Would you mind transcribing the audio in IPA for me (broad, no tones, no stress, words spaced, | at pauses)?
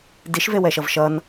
diʃvewɛʃʌv ʃʌn